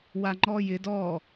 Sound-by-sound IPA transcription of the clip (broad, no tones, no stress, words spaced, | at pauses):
waŋ͡ǃɔjɪd ɔ